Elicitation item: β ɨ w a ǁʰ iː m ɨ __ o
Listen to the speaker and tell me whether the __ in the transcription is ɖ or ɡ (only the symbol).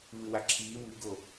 ɡ